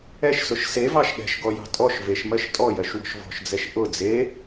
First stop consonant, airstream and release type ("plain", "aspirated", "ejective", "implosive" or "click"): implosive